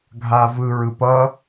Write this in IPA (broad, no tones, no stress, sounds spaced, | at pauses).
ɡʱ a v ɯ ɹ ɯ p ʌ